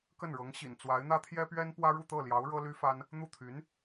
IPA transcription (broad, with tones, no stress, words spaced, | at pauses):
kə˥˩nɻɤ˧˥ŋɕḭ˨˩n t͡swa˧˥ɪ̯n̪ä˥t̪ʰjɛ˥pɥɛ˥n pwä˥ɻu˥˧t̪ɤ˥˩ljɑ˧˥ʊ̯ ɻɤ˥ly˥fa˥n | n̪u˥˩t̪ʰy˧˥n